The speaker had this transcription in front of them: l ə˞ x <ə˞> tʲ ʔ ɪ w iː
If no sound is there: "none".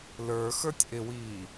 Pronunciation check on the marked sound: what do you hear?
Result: ə˞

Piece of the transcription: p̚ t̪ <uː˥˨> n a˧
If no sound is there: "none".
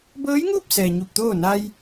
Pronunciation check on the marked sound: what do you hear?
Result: oː˥˨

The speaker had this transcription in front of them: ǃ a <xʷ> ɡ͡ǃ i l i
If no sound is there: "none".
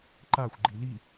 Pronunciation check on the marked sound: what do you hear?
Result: xʷ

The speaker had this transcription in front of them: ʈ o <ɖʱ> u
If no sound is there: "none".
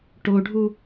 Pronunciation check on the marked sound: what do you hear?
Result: ɖʱ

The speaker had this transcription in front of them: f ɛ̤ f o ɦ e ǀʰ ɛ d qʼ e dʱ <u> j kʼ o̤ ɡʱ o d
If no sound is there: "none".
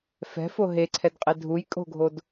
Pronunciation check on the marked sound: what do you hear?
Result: u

